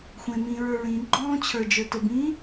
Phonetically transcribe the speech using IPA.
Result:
xʷẽ mĩɹə˞ ɹĩ ɡ͡ǃɔ̃ːt͡ɕʰə˞d͡ʒə˞tə bĩ

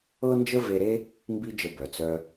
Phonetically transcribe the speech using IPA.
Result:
ɤ˦nd͡ʒə˦ ve˧ɾe˦ | mbi˦d͡ʒə˧ bœ˨t͡sœ˧

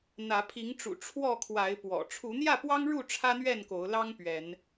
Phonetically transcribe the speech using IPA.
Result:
n̪ä˨˦ pʰi˨˦ŋʈ͡ʂṵ˨˩ ʈ͡ʂʰwɔ˥˨kʰwa˨˦ɪ̯pwɔ̰˨˩ ʈ͡ʂʰu˨˦n̪jä˥˨pwɑ˦ŋɻu˥˨ ʈ͡ʂʰä˦n̪ɥɛ˥˨nko˨˦ʊ̯lɑ˦ŋ pɥɛ˨˦n

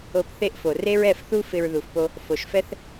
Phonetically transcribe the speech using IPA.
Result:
o˧p θe˦ʔfo˨ re˦ɹɛ˦˨fθu˦ fɪ˧ɹðu˨fpo˧ | fo˨ʃfɛ˦θ

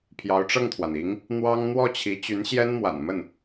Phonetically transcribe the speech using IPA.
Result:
pʰjɑ˧˥ʊ̯ʈ͡ʂɤ˥˩ŋt̪ʰwa˩ni˧˥ŋ | n̪wɑ˥ŋ n̪wɔ˥˩t͡ɕʰi˧˥ t͡ɕy˧˥nɕjɛ˥n mwa̰˨˩n mə˥˩n

